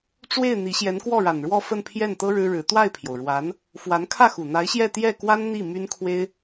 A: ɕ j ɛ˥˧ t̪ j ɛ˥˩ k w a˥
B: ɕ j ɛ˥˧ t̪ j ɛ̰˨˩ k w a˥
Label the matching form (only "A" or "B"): A